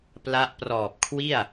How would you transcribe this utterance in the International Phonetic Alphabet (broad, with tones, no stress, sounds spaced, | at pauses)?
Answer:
p l a˦˥ ʔ p r ɔː˨˩ p̚ kʰ w i˥˩ a̯